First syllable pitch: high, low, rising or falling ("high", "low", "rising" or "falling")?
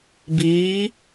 rising